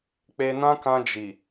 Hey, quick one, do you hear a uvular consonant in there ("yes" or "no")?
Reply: no